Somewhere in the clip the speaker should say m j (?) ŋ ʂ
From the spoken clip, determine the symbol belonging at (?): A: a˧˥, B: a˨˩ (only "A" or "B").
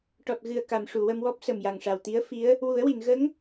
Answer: B